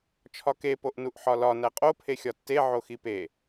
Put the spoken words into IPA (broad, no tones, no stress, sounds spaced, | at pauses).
t͡ʃʰ ɒ k e p o ʔ n u ʔ ħ ɒ l ɒ n æ qʼ o pʰ e xʲ ɒ tː e ʕ o x i p e